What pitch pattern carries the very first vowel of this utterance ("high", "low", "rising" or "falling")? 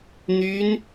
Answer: high